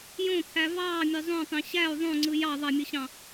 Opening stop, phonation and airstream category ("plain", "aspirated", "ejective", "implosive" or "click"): aspirated